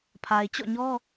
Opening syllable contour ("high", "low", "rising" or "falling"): low